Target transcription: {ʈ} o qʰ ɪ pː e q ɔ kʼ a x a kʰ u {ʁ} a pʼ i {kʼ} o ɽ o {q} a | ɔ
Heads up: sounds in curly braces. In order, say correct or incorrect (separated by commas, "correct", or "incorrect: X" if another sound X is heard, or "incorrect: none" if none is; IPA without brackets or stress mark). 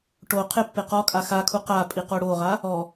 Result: correct, incorrect: q, incorrect: q, incorrect: ʁ